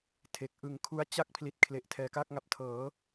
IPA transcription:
tʰe˨˩k̚ ʔɯ˨˩ŋkʰu˦˥a̯ t͡ɕa˥˩k̚ pʰli˨˩t̚ kʰle˨˩ʔ tʰɛː˨˩kaː˥˩k̚ŋa˨˩p̚tʰɤː˩˦

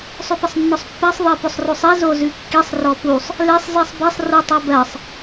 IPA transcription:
sˤʏpəsˤnːɔsˤpːɜsˤ ðˤɜpʏsˤrosˤi zozʉkːisˤ rɔpusˤ | lesˤ zisˤbesˤ rutˤɜbɜsˤ

